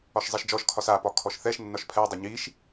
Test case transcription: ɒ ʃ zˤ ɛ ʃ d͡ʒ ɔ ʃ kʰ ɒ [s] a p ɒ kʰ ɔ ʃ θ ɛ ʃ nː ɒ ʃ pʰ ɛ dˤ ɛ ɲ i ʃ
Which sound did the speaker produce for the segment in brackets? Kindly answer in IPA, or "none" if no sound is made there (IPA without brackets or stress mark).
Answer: s